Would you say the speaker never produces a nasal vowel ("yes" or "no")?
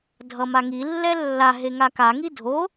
yes